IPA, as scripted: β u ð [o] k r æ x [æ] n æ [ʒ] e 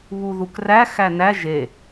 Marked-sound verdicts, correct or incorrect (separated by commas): incorrect, correct, correct